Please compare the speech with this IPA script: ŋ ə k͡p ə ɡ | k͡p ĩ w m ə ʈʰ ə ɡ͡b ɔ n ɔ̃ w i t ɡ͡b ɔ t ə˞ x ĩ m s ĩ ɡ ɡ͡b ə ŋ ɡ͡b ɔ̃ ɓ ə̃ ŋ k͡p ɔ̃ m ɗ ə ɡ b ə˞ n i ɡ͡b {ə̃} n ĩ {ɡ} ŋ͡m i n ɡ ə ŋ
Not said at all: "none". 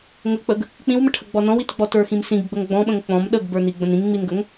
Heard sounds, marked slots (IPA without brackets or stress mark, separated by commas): ə̃, ŋ